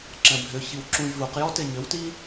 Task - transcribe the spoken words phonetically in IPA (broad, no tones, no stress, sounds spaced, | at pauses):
ǁ ɛ̃ bʱ ʏ ç i w ǁ ũ j v u q j ɔ t e ɲ ʏ w t i